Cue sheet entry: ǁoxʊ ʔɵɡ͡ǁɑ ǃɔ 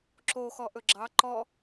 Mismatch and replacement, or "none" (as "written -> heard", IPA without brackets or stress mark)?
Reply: ʊ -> ɔ